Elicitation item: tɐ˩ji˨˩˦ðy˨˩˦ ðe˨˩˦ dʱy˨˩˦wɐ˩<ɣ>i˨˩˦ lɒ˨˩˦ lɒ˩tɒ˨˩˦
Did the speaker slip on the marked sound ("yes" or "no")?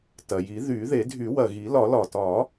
no